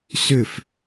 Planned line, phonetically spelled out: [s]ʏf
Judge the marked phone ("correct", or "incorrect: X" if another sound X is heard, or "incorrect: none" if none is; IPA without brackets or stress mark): correct